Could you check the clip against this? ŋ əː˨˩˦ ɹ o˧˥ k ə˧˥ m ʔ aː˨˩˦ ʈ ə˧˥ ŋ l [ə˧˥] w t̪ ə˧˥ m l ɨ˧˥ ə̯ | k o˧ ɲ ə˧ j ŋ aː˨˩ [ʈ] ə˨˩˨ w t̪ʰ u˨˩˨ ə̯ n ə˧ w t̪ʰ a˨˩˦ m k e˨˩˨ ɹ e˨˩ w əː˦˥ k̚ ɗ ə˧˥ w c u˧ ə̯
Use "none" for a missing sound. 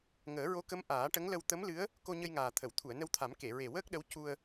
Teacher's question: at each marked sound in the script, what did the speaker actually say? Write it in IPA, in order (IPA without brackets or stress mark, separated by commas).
ə˧, t̪ʰ